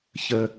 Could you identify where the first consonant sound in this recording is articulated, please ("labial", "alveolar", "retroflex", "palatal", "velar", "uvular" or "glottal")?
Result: palatal